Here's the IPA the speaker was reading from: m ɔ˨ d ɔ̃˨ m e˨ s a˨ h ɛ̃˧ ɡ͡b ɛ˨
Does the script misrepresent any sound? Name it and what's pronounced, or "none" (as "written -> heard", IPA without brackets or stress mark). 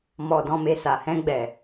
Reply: none